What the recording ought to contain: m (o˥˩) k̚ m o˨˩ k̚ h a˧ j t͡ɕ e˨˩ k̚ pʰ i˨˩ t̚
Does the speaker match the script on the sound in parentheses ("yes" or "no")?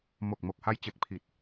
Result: no